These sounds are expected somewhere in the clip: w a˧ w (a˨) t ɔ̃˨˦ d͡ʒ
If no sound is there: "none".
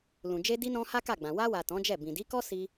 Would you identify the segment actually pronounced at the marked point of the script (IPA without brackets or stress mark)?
a˨